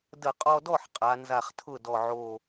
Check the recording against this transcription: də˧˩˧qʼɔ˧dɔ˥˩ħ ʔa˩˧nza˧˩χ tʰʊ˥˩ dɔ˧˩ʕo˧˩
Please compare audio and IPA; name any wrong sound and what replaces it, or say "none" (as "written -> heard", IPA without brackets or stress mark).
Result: ʔ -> qʼ